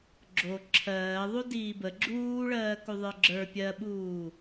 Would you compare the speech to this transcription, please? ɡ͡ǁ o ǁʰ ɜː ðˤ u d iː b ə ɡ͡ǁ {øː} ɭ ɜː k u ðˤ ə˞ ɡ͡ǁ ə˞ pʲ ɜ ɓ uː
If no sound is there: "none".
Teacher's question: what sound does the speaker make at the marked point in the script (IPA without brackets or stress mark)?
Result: uː